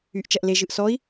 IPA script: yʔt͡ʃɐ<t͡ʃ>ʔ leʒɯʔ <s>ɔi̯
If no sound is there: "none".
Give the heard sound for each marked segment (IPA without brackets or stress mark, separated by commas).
none, s